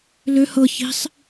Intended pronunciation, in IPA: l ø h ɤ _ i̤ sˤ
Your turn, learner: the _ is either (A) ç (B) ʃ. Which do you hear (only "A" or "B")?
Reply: A